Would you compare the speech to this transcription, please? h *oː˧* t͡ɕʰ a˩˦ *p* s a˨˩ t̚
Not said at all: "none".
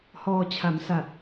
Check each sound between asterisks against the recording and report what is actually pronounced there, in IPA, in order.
ɔː˧, m

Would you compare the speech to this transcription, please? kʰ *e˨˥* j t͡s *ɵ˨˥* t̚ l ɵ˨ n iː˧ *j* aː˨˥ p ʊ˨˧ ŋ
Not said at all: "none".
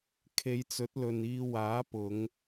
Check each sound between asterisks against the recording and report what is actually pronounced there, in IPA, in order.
e˨˧, ɵ˨˥, w

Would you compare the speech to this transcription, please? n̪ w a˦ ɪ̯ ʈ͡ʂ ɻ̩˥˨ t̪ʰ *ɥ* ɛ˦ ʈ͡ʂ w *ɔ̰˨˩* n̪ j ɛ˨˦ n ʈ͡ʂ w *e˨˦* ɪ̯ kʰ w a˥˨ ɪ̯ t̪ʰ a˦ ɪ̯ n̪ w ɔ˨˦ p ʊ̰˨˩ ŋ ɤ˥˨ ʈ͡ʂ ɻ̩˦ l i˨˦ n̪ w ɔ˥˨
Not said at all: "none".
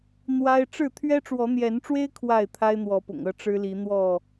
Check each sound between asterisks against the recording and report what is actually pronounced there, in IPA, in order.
ɥ, ɔ˨˦, e˦

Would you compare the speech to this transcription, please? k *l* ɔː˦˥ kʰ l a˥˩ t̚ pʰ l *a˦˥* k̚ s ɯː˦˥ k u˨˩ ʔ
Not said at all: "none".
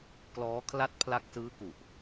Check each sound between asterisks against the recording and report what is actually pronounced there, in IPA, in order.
l, a˦˥

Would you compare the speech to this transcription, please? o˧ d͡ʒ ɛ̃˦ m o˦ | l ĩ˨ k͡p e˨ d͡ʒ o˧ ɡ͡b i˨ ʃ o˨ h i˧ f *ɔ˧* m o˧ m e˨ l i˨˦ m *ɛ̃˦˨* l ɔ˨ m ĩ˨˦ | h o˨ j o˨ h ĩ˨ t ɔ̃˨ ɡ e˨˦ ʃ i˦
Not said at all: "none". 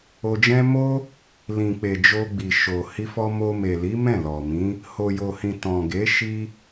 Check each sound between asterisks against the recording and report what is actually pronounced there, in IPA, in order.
ɔ˧, ɛ̃˦˨

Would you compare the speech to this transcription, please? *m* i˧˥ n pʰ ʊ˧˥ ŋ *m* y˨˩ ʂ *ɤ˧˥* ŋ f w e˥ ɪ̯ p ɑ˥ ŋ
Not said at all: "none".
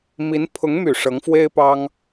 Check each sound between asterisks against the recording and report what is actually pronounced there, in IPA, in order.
m, m, ɤ˧˥

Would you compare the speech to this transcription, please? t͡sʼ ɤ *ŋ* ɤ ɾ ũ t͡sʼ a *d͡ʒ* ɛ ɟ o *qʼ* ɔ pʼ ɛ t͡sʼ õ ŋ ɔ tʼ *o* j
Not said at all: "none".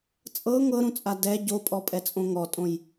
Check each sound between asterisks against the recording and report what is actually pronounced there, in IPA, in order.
ŋ, d, pʼ, õ

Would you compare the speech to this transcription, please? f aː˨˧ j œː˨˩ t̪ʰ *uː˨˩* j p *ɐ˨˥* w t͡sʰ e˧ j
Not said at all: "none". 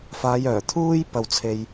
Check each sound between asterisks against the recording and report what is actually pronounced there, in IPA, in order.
uː˥, ɐ˧

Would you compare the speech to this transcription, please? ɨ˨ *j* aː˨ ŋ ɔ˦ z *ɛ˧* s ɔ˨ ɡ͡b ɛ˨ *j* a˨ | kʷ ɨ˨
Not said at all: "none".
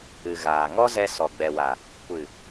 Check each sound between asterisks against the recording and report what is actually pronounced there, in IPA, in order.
ɣ, ɛ˧, w

